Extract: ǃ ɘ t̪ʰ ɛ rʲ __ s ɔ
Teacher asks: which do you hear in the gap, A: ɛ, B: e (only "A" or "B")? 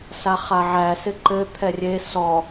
B